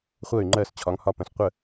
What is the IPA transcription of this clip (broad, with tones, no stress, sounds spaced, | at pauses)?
χʷ ɜ˥˩ y̯ ŋ͡ǃ ɜ˥˩ s t͡ɕʰ ɒ˩˥ ŋ h ɒ˥˩ p ə̃˩˥ s qʷ ə˥˩